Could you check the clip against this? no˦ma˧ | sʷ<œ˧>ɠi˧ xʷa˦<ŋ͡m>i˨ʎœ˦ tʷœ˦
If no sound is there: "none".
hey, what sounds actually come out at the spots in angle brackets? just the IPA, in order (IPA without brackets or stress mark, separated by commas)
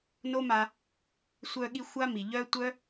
œ˧, m